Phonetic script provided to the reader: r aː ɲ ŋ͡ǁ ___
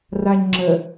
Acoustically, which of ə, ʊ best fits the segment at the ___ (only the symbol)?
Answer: ə